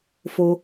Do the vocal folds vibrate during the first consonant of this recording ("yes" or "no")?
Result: no